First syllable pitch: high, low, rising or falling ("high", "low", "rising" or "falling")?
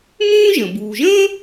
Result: high